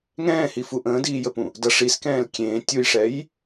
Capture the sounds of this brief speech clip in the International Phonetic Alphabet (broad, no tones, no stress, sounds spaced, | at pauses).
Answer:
ŋ ɛ̃ː h i f u ʔ ə̃ː d iː j ə p ũ | d ʌ ʂ i s k ɛ̃ː l kʲ ẽː tʲ u j ʂ ɛ j